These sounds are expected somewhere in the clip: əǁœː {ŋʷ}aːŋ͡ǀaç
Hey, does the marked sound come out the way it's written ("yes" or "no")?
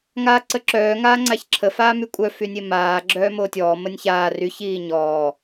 no